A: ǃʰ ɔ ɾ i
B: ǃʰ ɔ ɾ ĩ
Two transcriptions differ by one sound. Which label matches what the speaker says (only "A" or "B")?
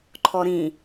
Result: B